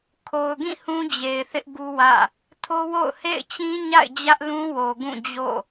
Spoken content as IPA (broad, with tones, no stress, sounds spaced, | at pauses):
kʰ o˨ ʊ̯ ɡ ĩ˦˨ h ũ˦ d͡ʑ e˨ ɪ̯ θ ɪ˦ ʔ ɡ u˦ w ä̰˦˨ | tʰ o˦ w o̰˦˨ ʊ̯ h ḛ˦˨ ɪ̯ t͡ɕ ĩ˦ ɲ a̰˦˨ ɪ̯ d͡ʑ ä˦ ʔ l ũ˦ w o˨ ɡ ũ˦˨ d͡ʑ o̰˦˨